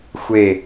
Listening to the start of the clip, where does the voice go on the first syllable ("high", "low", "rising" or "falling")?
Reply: falling